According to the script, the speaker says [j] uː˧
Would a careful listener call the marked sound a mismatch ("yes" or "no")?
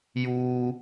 no